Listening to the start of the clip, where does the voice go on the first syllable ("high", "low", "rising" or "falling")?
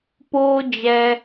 high